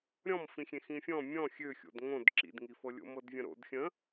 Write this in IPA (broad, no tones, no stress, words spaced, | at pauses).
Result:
ɾʲɔ̃mfĩxʲẽ xĩfʲɔ̃ mʲɔ̃ xʲø xʲo̰dŋõd ǁḭdŋifɤ lʲo̰mɤdvʲə̃ɾo̰d xʲə̃